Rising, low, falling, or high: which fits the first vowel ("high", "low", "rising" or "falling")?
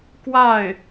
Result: falling